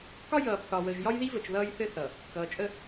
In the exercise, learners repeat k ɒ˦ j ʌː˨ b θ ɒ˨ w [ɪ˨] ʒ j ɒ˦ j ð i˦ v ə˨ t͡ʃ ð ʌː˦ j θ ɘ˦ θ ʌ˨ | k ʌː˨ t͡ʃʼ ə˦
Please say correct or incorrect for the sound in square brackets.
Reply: incorrect